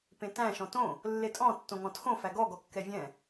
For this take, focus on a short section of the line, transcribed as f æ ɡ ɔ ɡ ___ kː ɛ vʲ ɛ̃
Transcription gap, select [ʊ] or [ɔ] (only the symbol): ɔ